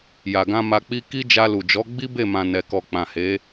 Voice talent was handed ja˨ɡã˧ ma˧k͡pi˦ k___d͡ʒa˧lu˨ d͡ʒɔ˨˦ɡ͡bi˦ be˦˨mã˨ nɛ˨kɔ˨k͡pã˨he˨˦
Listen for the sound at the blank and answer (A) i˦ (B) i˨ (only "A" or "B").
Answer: A